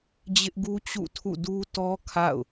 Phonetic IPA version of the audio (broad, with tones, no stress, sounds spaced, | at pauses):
d͡ʑ ɪ˦ ʔ ɡ u˦ t͡ɕ ṵ˦˨ tʰ ṵ˦˨ d u˦ t ɔ˦ kʰ a̰˦˨ ʊ̯